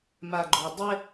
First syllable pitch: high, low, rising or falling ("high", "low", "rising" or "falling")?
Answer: low